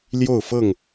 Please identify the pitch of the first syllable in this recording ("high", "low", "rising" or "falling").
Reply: falling